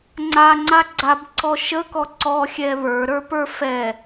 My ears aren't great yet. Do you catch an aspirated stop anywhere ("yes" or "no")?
no